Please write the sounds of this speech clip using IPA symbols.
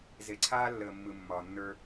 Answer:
z e˨ ǀʰ aː˦ lː əː˨ mː ɯ˨ mː ɒː˨ nː ə˞˦

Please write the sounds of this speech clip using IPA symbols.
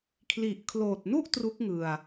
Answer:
kʰ l i˨˩ ʔ kʰ l oː˨˩ t̚ n u˥˩ ʔ t r u˦˥ k̚ ŋ ɯ˨˩ a̯

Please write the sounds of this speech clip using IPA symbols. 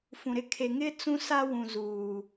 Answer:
f ũ˨ ɾ ɪ˦ kʰ e˨ ŋ ɪ˦ t͡s ũ˦ s a˦ w ũ˨ z uː˨

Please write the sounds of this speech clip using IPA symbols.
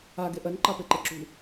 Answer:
a ɡ e ʔ ɜ n ǃ ɑ p e ǃ e ǁ ṳ

